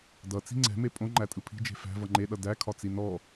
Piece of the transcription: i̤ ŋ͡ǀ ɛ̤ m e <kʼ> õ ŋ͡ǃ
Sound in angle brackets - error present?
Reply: yes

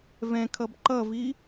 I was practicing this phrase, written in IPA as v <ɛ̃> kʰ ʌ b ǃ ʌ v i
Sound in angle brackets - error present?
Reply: no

